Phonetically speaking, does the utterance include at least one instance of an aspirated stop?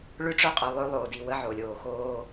no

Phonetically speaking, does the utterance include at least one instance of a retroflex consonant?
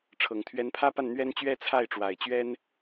yes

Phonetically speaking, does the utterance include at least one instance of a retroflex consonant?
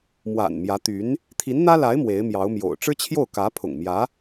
yes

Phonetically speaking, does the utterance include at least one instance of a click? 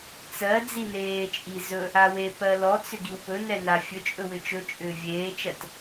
no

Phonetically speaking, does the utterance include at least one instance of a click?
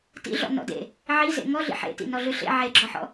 yes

